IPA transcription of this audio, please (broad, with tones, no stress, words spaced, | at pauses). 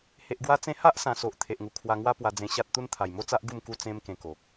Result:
he˨ʔɡwa˧t͡sẽ˧ ha˦ʔsã˨˩so˨ʔ t̪ʰe˨ʔŋu˨˩ kʰwa˧ŋwa˦pwa˧d͡zẽ˧ ɕa˦t̚t̪u˦n t̪ʰa˨˩jmo˦t͡sa˦ʔ ɡu˥˧m ku˥˧ t͡sẽ˧m kẽ˧ko˨k̚